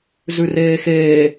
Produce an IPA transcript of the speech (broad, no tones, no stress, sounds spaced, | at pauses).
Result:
z ʉ r eː x eː